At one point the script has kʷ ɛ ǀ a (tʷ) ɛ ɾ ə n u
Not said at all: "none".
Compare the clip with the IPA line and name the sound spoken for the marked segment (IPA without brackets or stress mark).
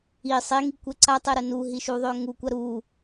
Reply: tˤ